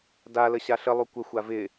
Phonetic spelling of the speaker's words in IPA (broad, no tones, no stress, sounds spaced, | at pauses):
d a l ə ɕ a ɬ ə lˠ u kʷ ə xʷ a v ɪ